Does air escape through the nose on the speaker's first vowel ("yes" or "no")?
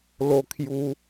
no